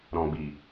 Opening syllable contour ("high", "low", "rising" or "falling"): low